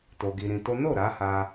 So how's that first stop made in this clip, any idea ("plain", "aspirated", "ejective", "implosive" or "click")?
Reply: plain